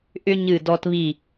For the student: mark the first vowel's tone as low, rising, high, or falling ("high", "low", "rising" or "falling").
high